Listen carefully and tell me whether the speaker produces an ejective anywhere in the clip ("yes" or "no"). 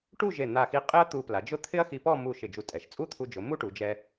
yes